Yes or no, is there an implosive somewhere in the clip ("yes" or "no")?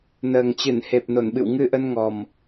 yes